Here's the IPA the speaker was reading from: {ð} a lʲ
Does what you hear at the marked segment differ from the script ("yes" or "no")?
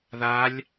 no